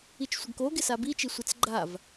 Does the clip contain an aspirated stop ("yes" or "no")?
no